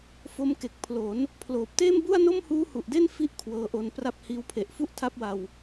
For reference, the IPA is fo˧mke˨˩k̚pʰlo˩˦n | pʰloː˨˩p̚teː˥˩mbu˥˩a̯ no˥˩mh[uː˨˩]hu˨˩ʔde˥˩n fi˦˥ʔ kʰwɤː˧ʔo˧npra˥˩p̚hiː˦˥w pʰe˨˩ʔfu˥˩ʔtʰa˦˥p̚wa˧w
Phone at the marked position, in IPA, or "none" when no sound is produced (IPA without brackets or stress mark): uː˦˥